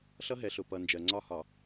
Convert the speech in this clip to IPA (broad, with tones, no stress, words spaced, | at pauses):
ɬʌ˦ɦɛ˨ɬʊ˨ pʌ˨nd͡ʒɜ˨ ŋ͡ǀɒ˦hɒ˨